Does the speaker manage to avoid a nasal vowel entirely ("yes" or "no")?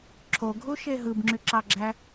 yes